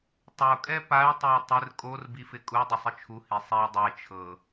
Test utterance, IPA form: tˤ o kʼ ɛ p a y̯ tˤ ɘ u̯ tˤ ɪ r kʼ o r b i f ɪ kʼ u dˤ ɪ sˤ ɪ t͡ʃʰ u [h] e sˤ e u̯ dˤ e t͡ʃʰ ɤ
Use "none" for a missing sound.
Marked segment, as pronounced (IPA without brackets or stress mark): h